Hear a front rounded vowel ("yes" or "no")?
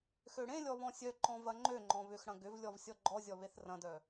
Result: yes